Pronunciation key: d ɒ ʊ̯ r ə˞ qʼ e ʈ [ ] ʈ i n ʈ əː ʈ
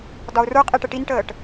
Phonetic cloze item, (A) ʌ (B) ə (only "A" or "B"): B